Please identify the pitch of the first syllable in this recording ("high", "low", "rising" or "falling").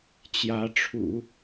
rising